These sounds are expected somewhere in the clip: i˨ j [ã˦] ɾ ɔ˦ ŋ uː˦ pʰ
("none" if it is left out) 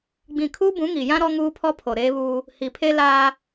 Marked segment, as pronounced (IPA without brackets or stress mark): ã˦